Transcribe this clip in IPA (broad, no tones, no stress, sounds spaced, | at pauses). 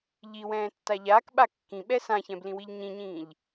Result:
ʎ i w ɛ̃ː tː a ʎ aː k ɓ a kː ĩ ɓ ɛ s ã ç ɛ̃ b l ĩ w i ʎ ɲ ĩ ɲ ĩː ʎ